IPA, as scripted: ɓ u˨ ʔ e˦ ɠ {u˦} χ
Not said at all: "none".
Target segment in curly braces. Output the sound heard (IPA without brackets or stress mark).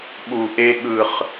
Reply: ɯ˦